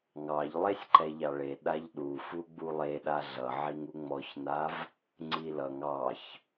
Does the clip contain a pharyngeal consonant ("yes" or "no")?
yes